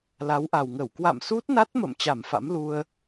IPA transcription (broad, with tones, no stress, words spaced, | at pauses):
la˨˦wʔa˨˩wŋə˧˩w kwa̰˧˨msu˦˥t̚na˦˥t̚mə̰˧˨m t͡ɕa˧˩mfa̰˧˥mlu˧ə̯